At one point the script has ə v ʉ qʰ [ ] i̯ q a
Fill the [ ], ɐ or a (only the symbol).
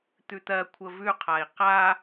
a